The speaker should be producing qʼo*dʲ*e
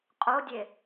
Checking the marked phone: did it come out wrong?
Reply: no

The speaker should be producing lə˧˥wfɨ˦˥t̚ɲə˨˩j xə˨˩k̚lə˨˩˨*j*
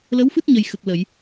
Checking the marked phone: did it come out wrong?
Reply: no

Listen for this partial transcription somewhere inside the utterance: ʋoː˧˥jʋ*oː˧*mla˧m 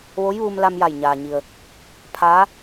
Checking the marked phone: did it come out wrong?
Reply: yes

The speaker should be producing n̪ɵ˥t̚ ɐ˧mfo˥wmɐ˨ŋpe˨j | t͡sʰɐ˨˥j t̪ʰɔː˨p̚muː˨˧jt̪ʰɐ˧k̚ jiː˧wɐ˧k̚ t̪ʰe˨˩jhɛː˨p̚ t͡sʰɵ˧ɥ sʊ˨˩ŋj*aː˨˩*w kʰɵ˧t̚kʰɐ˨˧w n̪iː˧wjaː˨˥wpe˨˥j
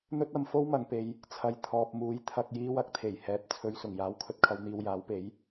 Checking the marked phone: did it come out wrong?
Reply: yes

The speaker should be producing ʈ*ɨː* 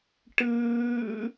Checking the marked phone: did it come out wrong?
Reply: no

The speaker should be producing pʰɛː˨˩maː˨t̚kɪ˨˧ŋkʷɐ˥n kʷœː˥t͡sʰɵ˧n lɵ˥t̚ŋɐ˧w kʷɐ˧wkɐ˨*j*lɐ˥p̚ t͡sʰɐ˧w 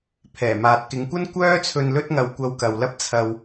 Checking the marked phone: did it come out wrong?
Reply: yes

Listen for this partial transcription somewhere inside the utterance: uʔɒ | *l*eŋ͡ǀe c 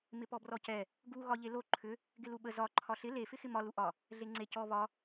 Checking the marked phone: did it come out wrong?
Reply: yes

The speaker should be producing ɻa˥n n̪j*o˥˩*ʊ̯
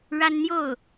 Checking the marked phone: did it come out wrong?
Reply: no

